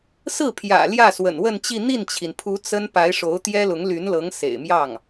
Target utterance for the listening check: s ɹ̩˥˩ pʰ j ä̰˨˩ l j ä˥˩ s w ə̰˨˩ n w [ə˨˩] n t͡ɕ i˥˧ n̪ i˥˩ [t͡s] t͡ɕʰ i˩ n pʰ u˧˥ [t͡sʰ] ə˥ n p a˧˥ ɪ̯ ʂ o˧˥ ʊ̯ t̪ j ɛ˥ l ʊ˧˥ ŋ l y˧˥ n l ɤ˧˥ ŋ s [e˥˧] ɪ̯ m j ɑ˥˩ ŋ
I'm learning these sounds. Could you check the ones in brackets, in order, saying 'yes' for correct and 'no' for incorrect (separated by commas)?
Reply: no, no, no, no